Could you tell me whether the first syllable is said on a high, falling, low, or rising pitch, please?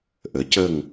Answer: rising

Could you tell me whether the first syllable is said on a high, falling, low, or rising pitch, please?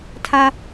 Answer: high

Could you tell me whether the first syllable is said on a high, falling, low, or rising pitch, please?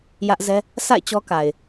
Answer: high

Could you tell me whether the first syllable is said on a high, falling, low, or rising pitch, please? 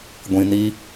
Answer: low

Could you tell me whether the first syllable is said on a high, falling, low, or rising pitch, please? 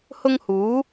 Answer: high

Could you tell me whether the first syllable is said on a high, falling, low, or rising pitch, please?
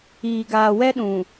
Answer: low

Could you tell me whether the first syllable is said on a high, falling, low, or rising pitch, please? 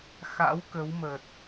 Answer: rising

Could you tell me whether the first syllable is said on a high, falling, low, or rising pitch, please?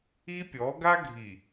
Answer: high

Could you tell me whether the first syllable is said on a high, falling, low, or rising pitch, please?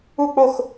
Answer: falling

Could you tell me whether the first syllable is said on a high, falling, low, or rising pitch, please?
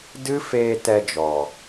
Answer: high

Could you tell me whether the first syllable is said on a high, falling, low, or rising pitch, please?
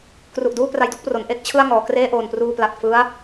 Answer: low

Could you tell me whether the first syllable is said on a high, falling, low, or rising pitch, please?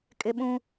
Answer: high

